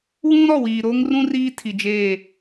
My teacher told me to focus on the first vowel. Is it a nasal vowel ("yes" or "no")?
yes